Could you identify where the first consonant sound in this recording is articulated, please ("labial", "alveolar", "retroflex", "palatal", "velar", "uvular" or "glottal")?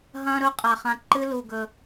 glottal